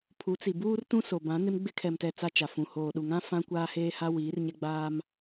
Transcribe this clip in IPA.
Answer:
pʰ u˨˦ t͡s i˨ b uː˦ r t ũ˦ s o˨ b ã˨˦ n ɪ˦ m ɡ͡b ɪ˦ kʰ ɛ˨ m t ɛ˨ t͡s a˦ t͡ʃ a˨ f ũ˨ h oː˨ ɗ u˨ ŋ ã˦ f ã˦ kʷ aː˦ h eː˦ h a˦ w iː˨˦ r ɲ ɛ˦ ɡ͡b aː˦ m

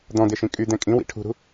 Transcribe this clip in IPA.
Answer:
d̪ ɔ̃ d̪ e ʃ ĩ kʼ y d̪ ɛ̃ kʼ ĩ w ḭ ʈʰ ṳ ɾ ṳ

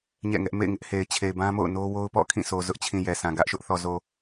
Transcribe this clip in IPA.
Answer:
ɲ ɛ̰˦˨ ŋ ɛ˦ ʔ m ḛ˦˨ ɪ̯ ŋ ɪ˦ ʔ h e˨ ɪ̯ t͡ɕʰ e˨ ɪ̯ b ã˦ m o̰˦˨ ʊ̯ n o˦ w o˦ ʊ̯ p ɔ̰˦˨ kʰ ĩ˦˨ sʰ o˨ z ʊ˦ ʔ t͡ɕʰ ĩ˨ j ɛ˨ s ã˨ ɡ ä˦ ʔ ʃ ʊ˦ ʔ θ ɔ˨ z o˨

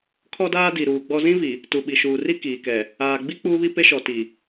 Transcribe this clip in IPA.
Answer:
kʰ ɔ˦ d aː˦ d i˨ ɾ uː˨ ɡ͡b ɔ˦ z ĩ˦ v i˨ | t u˨ ɓ i˨ ʃ uː˨ r i˦ k iː˨ k ɛ˨ | aː˨ ɡ͡b i˦ k͡p uː˦ β i˦ p e˦ ʃ ɔ˨ t i˨

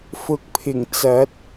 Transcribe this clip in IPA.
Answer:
f ʊ˨ k̚ pʰ ɪ˨˩ ŋ t͡s ɐ˨˥ t̚

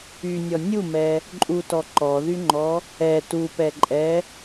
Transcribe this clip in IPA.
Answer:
y nʲ ɔ nʲ u m ɛ | ǃʼ u t ɔ ǃ ɔ ð y ŋ͡ǃ ɔ | ɛ t u p ɛ ǃʼ ɛ

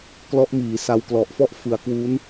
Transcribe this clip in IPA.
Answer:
k l ɔ˦˥ ʔ m iː˩˦ s a˧ w k l ɔ˨˩ ʔ f ɔ˥˩ ʔ f ɯ˩˦ a̯ k w u˦˥ n

